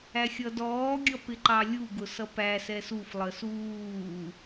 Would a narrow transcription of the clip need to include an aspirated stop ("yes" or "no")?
no